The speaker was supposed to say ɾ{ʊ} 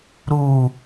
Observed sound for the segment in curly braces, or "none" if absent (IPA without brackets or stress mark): u